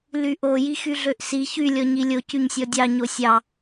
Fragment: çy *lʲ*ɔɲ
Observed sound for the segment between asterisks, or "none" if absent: lʲ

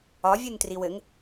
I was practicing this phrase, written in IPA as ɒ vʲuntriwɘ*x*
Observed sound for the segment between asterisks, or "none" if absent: ŋ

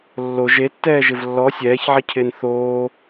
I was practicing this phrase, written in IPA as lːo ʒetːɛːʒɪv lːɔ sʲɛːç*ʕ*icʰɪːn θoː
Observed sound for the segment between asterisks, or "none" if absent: ʕ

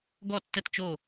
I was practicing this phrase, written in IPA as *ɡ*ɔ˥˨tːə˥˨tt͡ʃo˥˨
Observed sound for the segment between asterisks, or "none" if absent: ɡ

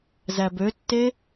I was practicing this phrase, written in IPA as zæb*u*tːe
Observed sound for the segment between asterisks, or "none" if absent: ø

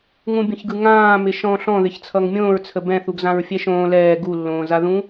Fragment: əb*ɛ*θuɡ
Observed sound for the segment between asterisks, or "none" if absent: ɛ̃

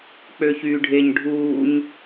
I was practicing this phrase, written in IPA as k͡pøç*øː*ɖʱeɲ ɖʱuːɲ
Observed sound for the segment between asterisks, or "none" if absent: yː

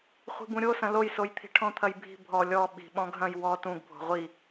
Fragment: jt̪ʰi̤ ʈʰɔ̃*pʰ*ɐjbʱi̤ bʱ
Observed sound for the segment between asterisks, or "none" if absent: t̪ʰ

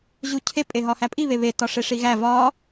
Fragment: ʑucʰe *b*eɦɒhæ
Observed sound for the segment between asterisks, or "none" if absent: pʼ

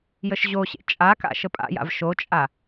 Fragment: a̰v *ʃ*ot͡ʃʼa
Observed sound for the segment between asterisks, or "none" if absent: ʃ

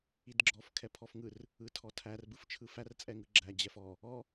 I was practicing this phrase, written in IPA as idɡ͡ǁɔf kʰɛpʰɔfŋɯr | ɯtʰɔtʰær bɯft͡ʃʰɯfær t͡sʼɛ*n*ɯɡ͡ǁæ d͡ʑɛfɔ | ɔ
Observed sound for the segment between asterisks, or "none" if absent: ŋ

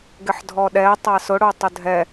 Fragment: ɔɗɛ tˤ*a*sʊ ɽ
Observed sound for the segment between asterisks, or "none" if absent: a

